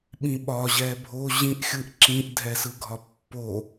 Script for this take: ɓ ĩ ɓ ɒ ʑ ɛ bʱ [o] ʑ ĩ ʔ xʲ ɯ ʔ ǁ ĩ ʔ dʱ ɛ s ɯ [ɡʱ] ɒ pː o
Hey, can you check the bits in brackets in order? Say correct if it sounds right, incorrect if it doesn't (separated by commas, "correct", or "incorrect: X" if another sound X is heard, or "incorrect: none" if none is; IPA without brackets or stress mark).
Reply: correct, correct